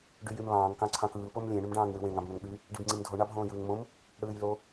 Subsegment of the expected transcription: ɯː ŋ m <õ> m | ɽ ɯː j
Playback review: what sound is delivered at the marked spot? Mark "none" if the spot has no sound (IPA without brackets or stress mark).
õ